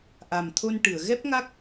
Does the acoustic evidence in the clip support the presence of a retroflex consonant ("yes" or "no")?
yes